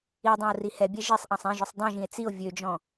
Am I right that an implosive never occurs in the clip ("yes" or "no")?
yes